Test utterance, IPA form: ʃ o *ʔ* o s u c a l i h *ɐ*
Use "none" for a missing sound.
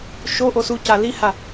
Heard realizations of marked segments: ʔ, a

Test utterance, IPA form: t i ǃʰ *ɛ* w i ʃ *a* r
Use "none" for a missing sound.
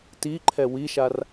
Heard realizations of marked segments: ɛ, a

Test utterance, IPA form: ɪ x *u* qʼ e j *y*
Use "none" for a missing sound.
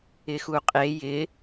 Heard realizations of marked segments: u, ɪ

